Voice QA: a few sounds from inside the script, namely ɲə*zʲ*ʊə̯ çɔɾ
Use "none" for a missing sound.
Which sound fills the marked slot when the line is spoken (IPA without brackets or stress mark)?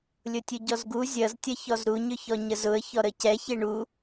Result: z